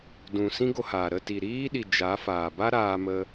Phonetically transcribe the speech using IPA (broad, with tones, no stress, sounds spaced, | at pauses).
d ũ˨ s ĩ˦ ɡ o˧ h aː˨ ɾ ə˦˨ t i˨ ɾ iː˦ ɗ i˨ d͡ʒ a˨˦ f aː˨ b a˦ ɾ aː˧ m ə˧